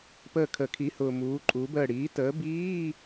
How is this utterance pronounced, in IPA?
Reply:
p əː˦˨ kʰ əː˨˩˦ kʰ i˨˥ h ʊː˨ m uː˨˥ ǃʼ uː˨˥ b əː˦˨ ɽ iː˨˥ t əː˨˥ b iː˧˥˧

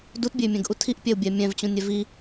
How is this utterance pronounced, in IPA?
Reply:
d u t bʲ e y̯ mʲ ɛ̃ ɡ ʔ u tʰ i ʔ pʲ ɛ u̯ bʲ ɛ mʲ ɛ̃ v t͡ɕ ũ nʲ ɛ v i

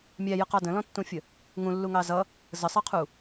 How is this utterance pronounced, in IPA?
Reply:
mʲ æ j ə q ɑ d ə̃ l ɔ̃ tː ũ fʲ ə | ŋ ũ lː u ŋ ɑ z ʌ | z ə sˤ ɑ qʰ u

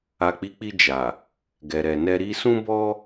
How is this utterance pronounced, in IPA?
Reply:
a˨ k͡p i˨˦ k͡p i˧ d͡ʒ a˨ | ɡ ɛ˨ ɾ ɛ˨ n ɛ˧ ɾ i˧ s ũ˦ b ɔ˦

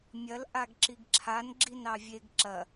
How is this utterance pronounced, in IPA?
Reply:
mʲ ɐ l ʔ a ɡ ǁ i ɡ ǁʰ a n ɡ͡ǁ i n ɑ vʲ e ɡ ǁ ɐ

